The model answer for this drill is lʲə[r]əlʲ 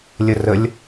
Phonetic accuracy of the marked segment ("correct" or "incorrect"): correct